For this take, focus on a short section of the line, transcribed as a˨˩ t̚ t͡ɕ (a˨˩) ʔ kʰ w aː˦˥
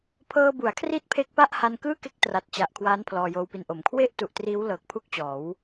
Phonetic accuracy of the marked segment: correct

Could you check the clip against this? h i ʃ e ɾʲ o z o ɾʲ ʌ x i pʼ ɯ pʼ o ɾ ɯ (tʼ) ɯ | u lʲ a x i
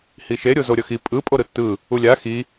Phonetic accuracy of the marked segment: incorrect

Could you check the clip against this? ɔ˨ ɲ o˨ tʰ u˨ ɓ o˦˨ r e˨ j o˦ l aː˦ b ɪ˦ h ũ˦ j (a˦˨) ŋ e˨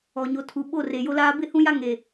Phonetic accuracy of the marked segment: incorrect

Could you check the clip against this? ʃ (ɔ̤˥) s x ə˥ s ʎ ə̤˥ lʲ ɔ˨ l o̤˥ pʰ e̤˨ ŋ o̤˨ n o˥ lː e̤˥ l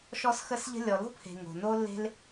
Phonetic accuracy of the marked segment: incorrect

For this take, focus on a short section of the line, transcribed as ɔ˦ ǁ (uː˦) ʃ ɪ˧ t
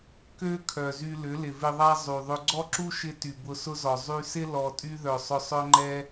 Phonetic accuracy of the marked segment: incorrect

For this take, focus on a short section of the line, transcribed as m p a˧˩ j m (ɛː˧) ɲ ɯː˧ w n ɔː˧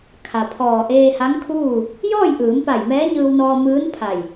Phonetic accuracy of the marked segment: incorrect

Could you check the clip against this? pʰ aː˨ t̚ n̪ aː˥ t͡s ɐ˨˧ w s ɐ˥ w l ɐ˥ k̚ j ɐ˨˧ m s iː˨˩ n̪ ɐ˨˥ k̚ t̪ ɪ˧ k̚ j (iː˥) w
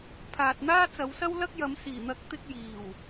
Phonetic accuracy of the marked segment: incorrect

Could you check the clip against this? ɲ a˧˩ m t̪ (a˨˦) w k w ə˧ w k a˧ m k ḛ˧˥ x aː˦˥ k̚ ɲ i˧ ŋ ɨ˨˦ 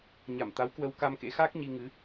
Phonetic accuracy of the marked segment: correct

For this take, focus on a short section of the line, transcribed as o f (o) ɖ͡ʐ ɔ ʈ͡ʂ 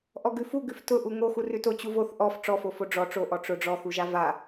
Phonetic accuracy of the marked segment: correct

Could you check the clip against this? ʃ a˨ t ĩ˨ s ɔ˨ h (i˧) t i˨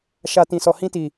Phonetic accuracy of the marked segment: incorrect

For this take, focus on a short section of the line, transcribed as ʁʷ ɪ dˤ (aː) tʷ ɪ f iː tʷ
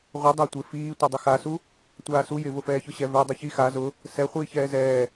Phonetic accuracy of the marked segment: incorrect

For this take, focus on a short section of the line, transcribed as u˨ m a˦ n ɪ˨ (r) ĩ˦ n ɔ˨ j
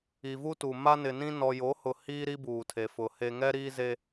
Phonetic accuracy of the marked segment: incorrect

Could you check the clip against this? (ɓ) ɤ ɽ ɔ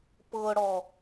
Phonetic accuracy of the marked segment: incorrect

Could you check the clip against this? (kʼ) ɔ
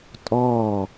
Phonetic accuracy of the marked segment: incorrect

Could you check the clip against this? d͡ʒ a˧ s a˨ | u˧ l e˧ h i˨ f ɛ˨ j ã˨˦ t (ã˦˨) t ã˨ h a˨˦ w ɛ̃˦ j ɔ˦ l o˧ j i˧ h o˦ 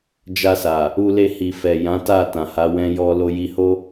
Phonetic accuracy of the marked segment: incorrect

